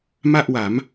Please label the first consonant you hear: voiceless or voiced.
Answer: voiced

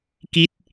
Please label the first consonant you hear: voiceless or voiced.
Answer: voiceless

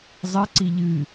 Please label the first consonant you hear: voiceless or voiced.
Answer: voiced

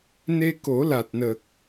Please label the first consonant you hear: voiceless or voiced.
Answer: voiced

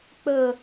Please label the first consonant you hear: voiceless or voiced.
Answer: voiceless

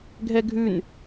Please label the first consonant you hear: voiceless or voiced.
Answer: voiced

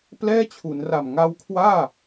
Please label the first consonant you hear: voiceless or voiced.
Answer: voiceless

